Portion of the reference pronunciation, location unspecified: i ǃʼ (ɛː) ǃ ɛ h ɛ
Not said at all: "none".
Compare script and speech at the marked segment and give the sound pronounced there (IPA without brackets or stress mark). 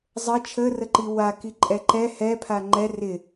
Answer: ɛ